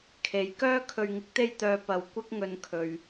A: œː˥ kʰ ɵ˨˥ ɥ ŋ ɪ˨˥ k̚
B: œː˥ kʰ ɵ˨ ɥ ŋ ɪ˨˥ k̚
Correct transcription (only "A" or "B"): B